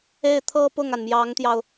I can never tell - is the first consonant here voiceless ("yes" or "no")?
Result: yes